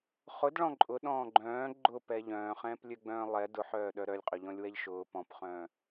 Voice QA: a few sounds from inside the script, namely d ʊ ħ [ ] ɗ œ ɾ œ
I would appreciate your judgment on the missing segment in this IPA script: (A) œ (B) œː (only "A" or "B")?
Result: B